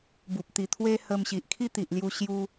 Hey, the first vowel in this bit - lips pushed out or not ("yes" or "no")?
yes